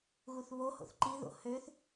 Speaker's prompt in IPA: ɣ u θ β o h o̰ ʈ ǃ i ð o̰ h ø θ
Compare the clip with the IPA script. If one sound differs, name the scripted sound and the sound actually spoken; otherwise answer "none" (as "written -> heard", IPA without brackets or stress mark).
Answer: ʈ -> θ